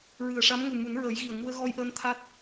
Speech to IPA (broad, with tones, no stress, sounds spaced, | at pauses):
ɹ ɨ˨˩ ə̯ ʂ a˧˥ m ŋ u˨˩ m u˨˩˦ n ɹ əː˨˩˦ j ɣ i˨˩ ə̯ ŋ u˧ ə̯ ɣ ɔ˧ j ʔ əː˧ n t̪ʰ a˦˥ t̚